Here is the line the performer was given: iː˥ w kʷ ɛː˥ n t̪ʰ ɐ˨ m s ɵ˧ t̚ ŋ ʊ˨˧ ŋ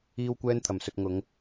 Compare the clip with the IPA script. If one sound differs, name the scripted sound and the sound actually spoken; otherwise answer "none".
none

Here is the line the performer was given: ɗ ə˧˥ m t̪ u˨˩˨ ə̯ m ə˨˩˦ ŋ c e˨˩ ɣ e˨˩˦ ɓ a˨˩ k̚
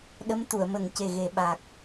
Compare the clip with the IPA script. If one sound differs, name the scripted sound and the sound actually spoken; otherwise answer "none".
none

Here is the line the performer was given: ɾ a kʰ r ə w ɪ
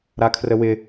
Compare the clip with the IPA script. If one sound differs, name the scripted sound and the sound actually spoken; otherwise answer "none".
none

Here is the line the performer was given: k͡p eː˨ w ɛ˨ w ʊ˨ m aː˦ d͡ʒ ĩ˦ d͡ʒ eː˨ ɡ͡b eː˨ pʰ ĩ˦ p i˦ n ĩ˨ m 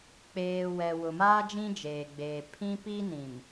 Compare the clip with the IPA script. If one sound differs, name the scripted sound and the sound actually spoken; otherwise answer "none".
none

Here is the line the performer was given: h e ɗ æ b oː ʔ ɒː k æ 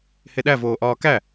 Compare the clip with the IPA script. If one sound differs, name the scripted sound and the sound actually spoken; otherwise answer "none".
b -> v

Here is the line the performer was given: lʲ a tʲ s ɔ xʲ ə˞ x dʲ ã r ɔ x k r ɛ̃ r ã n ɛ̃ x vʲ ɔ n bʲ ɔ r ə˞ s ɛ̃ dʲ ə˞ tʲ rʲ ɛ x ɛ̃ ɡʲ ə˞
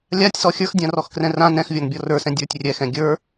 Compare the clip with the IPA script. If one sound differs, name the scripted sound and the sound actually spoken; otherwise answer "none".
none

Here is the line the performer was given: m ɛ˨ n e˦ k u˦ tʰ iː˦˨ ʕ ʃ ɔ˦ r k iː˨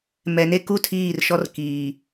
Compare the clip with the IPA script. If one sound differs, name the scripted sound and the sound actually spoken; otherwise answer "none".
ʕ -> r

